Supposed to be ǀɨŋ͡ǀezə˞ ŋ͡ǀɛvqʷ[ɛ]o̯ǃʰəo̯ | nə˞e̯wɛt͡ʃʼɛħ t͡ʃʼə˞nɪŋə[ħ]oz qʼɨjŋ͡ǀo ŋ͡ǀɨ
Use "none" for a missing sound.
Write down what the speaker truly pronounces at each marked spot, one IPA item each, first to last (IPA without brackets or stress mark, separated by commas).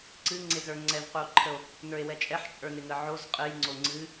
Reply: ɨ, ʕ